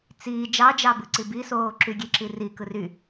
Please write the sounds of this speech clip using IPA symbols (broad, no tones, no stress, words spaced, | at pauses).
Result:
t͡siː d͡ʒɑd͡ʒɑbɯ ǀibisoː ǁyɡʲe ǁirikɯ ry